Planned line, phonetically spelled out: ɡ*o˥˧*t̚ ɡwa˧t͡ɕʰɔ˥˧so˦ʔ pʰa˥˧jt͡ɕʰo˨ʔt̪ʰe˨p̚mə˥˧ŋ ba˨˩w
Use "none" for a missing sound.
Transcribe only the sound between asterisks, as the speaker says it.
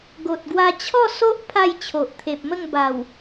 o˨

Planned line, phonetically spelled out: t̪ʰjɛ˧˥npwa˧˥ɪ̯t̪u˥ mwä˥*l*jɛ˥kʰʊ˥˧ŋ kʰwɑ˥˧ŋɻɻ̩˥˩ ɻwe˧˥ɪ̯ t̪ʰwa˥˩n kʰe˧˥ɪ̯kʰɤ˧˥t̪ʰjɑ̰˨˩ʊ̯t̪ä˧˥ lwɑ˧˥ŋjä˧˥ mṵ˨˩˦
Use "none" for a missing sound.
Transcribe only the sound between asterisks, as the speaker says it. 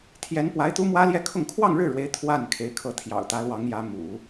l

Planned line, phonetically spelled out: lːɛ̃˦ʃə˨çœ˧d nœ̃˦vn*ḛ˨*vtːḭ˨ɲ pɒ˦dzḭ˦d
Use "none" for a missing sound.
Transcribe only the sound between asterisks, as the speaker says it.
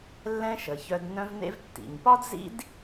ḛ˦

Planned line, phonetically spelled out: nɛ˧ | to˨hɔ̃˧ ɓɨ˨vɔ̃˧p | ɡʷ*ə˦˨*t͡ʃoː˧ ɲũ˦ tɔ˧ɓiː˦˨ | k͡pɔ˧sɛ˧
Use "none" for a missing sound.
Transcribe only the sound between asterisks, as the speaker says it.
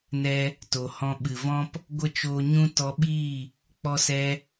ə˦˨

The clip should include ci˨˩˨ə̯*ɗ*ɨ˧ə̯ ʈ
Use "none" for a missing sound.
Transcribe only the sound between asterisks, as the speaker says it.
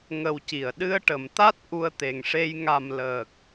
ɗ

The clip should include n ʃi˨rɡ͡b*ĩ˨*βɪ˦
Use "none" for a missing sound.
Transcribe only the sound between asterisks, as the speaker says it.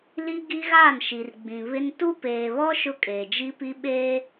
ĩ˨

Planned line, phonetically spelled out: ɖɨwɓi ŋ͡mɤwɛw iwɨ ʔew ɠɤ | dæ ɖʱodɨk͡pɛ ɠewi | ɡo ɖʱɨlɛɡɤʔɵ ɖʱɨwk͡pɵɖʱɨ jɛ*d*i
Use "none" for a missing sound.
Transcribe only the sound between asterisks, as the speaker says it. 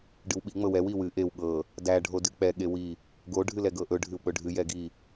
ɡ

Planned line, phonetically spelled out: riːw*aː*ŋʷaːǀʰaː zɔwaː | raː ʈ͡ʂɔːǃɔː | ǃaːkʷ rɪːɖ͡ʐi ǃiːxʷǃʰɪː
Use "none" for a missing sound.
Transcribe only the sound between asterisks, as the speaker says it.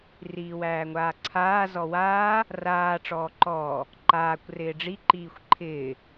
æː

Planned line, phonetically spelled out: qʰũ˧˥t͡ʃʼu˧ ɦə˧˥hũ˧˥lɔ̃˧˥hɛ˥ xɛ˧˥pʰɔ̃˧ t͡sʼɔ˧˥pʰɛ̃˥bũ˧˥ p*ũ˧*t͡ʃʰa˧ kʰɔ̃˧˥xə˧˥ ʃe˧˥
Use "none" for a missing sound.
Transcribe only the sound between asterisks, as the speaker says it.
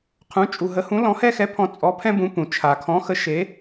ũ˧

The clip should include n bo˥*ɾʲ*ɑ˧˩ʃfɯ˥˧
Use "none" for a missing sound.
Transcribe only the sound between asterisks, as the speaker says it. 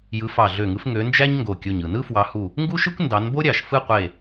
ɾʲ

